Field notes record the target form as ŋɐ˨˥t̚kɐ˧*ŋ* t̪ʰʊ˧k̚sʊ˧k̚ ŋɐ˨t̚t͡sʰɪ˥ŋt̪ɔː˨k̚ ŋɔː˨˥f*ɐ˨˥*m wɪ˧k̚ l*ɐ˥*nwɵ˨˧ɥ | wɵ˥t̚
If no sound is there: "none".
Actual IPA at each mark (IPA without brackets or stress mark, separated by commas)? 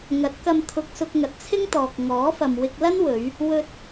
m, ɐ˨, ɐ˥